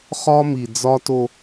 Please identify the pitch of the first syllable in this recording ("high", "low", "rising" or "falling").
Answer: high